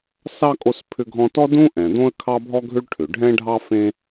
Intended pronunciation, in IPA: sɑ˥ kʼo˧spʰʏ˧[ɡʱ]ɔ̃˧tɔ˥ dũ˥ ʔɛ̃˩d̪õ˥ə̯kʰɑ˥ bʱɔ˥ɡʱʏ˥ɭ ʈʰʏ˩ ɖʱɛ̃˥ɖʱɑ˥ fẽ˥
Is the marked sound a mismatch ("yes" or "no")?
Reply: no